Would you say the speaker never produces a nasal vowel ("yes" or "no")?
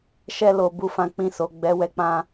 no